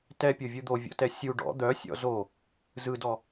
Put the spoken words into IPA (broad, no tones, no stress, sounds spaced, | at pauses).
t ɛ pʲ o vʲ u d̪ o vʲ ɔ̰ t ɛ sʲ u ɖ ɔ̰ d̪ œ sʲ ɔ̰ z o | z ɯ d ɔ